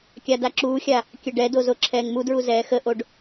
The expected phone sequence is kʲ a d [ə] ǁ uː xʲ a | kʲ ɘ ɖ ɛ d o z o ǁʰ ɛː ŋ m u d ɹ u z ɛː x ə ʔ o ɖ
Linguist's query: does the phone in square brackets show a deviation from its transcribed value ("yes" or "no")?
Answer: yes